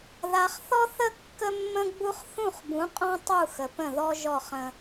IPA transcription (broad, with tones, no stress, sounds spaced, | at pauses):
ð a˨ χ θ ɔ˦ θ ə˦ kː ə˦ mː ə̃˦ ɡ͡b u˦ χ θ ũ˦˨ χ b ũ˨˦ qʼ ɔ̃˦ tˤ u˦˨ x ə˨ p ə̃˦˨ ð ɔ˦ ʒ ɔ˦˨ χ ə̃˦